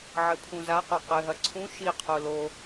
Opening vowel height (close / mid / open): mid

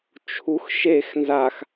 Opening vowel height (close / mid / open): close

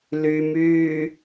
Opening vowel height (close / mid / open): close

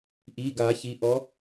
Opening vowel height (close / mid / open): close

